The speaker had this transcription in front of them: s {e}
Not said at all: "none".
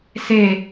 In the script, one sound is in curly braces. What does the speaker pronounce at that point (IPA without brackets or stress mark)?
e